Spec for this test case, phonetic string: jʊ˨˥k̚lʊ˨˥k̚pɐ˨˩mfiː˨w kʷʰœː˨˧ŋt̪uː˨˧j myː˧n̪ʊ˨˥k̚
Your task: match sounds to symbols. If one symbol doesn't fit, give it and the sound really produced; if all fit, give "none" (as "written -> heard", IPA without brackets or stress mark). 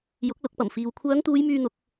none